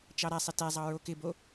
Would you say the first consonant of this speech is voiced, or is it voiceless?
voiceless